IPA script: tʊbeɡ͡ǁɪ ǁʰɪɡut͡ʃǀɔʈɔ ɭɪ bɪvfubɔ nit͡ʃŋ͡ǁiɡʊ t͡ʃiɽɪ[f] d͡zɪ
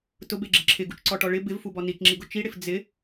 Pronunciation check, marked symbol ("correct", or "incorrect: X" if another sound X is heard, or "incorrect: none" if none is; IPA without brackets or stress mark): correct